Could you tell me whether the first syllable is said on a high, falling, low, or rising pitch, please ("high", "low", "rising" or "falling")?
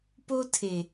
high